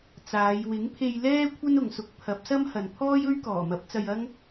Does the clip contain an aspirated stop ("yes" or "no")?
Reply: yes